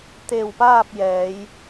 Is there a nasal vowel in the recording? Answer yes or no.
no